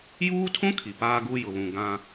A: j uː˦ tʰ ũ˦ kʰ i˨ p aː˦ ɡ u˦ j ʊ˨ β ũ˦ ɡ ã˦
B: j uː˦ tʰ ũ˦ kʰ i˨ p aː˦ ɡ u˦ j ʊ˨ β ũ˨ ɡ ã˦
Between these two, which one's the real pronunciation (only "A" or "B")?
B